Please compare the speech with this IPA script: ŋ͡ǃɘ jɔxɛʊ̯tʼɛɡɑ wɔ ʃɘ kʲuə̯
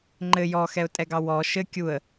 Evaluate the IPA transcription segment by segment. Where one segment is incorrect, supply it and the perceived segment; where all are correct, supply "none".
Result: none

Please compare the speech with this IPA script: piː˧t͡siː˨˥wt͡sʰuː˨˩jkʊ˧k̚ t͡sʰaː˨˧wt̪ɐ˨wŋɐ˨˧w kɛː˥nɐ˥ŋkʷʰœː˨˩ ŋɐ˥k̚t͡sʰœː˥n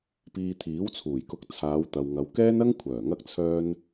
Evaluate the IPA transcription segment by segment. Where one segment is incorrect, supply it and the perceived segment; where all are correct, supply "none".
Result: t͡s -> t̪ʰ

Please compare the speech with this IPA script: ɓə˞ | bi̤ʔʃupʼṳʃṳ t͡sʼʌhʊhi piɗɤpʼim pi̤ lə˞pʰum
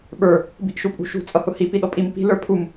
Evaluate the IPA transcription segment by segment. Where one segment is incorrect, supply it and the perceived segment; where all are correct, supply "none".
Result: ɤ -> ɔ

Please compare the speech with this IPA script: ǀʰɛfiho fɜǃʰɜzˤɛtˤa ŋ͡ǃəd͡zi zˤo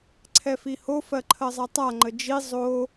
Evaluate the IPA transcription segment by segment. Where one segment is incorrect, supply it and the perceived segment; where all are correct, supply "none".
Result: d͡z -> d͡ʒ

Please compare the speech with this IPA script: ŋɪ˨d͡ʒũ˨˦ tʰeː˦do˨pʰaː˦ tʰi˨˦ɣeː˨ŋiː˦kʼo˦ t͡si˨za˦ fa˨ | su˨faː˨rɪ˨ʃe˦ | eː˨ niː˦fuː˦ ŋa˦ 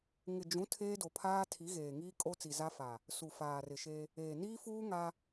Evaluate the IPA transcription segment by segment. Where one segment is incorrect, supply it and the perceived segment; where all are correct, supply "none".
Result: none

